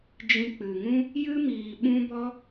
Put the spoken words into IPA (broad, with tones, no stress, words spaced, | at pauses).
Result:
d͡ʒĩ˧k͡pɨ˨ŋũ˦ | jɨ˦miː˨ ɓũ˦bɔ˦